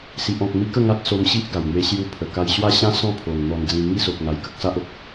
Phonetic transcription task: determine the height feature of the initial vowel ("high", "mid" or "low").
high